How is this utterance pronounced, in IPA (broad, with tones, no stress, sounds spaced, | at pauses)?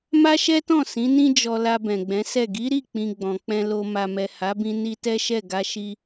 m a˦ ʃ ɛ˦ t ɔ̃˦˨ s ĩ˨˦ n ĩ˦ d͡ʒ ɔ˧ l a˧ b ɛ̃˨ ɡ͡b ɛ̃˨˦ s ɛ˦˨ ɡ i˨˦ ɾ i˦˨ k͡p ĩ˨ ɡ͡b ɔ̃˨ k͡p ɛ̃˧ l o˧ m a˨ m ɛ˨ h a˨˦ b ĩ˧ n i˧ t ɛ˦ ʃ ɛ˦˨ ɡ a˧ ʃ i˧